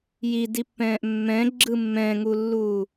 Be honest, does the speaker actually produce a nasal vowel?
yes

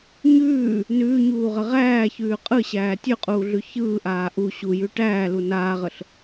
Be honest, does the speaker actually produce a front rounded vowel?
no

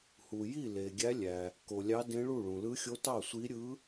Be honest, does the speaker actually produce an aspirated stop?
no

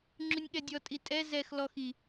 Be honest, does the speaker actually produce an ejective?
yes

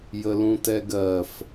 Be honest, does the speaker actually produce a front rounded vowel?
no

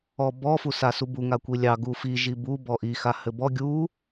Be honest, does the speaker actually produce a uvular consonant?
no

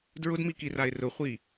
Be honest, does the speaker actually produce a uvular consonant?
yes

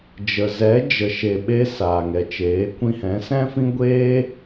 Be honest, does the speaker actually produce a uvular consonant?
no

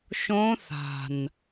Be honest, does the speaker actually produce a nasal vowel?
yes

